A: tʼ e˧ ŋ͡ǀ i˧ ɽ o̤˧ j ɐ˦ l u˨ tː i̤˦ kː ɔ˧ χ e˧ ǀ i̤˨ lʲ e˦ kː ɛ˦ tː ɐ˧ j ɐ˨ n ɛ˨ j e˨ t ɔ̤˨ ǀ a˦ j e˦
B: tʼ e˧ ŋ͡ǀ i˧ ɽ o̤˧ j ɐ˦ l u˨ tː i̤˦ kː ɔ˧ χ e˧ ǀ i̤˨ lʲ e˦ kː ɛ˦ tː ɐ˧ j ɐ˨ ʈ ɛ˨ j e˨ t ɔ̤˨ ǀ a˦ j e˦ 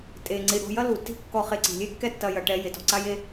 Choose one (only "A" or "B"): B